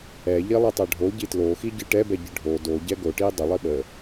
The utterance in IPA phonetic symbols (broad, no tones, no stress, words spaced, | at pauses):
ɛʎilˠitˤɛ ɖʱoɟi tloxiɟɨ ʈɛbɛɟɨ ɖʱo doɟɛ ɡoʈi dˤəlˠi ɓə